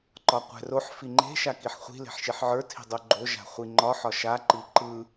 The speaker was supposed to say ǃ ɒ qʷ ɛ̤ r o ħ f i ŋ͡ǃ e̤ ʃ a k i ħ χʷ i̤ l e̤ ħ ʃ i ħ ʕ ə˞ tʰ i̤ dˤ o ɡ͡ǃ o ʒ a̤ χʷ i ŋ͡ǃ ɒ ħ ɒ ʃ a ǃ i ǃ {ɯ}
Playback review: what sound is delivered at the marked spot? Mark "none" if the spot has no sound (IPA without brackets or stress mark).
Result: ɯ